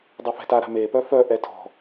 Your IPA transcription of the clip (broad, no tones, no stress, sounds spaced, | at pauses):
dˤ y f ɛ̤ t a ɾ a̤ m e p œ f œ ʔ ɛ tʰ ɔ̤